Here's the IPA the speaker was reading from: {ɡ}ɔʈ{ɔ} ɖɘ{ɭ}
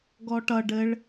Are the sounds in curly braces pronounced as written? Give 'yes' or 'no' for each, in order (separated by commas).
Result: yes, no, yes